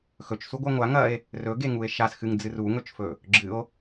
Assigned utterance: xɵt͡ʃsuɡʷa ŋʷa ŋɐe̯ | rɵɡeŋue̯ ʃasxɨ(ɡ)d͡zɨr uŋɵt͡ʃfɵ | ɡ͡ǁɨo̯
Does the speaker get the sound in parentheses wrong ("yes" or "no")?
yes